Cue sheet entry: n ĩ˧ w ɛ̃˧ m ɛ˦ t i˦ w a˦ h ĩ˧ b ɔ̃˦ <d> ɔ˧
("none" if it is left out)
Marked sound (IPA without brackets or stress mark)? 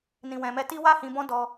d